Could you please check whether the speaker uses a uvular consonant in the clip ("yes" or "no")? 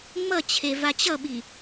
no